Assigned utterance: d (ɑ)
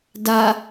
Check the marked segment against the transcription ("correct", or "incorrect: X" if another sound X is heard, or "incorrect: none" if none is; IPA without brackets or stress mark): incorrect: a